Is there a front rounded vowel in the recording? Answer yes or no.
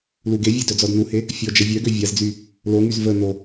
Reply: yes